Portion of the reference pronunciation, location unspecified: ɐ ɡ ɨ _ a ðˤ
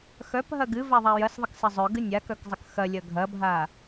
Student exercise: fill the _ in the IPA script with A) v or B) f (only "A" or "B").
A